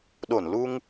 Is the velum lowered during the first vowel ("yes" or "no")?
no